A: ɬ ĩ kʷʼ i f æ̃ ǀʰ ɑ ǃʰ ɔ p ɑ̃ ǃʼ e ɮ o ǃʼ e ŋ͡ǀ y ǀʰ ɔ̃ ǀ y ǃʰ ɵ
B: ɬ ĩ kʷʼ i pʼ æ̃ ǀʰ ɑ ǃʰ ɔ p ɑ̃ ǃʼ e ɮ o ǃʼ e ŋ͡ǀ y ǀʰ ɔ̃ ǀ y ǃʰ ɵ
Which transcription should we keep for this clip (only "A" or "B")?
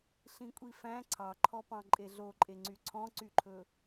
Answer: A